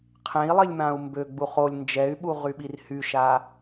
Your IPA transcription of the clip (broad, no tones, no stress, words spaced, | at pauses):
qʰẽi̯lˠilʲ mãu̯mbøɡ͡buχ olʲ nd͡ʒɛy̯ɓu ʁyɓirhyʃa